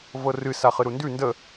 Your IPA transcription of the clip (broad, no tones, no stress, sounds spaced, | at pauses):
v ɤ r ɨ s a χ ɨ ɾ u n d ʉ n d ə